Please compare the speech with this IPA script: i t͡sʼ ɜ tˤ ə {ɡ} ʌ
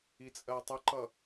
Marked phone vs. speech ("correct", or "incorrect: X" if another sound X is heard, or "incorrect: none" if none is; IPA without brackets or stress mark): incorrect: ǃ